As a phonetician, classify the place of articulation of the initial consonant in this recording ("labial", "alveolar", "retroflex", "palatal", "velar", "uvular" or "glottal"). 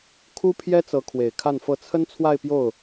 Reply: velar